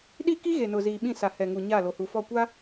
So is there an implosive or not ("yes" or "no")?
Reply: yes